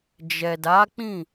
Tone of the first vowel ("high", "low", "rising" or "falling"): low